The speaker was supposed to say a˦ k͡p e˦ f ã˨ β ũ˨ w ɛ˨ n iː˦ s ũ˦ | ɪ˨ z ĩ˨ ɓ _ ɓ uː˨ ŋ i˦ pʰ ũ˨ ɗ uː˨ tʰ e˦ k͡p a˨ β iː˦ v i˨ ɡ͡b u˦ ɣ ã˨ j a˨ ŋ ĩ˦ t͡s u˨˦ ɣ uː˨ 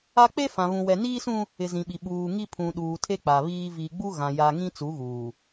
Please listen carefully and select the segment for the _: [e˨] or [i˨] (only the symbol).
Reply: i˨